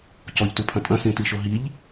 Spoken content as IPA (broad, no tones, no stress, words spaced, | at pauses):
cɔʎtupʰɐ̃ tʼɐ̃sĩtiʃo ɦiʎ